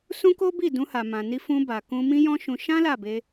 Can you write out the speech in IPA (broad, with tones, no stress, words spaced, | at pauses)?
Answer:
sũ˦ko˦bi˦˨ dũ˧ha˨ mã˨ni˧fũ˧ ba˨kũ˧ mĩ˦jɔ̃˦ʃũ˧ ʃã˦ la˦˨be˧